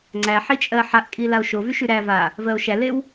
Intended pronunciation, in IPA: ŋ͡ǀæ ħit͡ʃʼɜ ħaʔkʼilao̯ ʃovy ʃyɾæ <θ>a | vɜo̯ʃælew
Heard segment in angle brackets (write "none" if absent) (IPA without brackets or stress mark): v